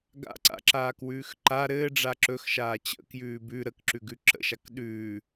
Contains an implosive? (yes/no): yes